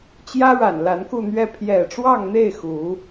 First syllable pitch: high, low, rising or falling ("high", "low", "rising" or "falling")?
high